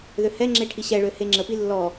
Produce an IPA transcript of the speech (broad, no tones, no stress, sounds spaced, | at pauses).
ð ø h ɛ ŋ͡ǁ e ʈʰ i ɕ ɛ ɭ ø h e ŋ͡ǁ ə p i lː ɔ